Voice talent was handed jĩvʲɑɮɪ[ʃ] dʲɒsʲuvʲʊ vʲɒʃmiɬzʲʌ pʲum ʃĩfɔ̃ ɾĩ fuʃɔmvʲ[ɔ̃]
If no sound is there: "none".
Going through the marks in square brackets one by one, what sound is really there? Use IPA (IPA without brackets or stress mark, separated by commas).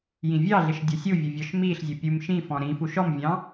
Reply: ʃ, ɑ̃